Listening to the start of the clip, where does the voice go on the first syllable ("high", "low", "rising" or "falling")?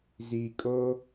low